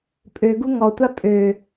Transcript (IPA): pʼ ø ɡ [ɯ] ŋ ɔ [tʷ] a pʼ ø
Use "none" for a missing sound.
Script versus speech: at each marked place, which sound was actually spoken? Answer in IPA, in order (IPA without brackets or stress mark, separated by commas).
u, tʷ